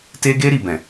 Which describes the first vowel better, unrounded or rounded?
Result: unrounded